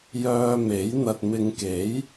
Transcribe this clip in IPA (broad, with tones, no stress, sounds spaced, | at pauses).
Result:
j œː˧ m e˨˥ j n̪ ɐ˨ t̚ m ɪ˨˧ ŋ k e˨˥ j